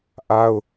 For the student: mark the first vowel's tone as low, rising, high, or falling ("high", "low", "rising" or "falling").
high